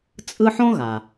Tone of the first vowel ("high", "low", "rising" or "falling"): high